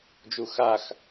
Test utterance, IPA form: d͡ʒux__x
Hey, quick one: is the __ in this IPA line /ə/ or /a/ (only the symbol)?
a